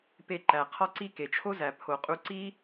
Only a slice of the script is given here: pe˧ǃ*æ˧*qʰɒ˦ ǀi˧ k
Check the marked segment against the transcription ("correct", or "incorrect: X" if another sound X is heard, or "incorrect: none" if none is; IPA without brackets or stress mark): incorrect: æ˨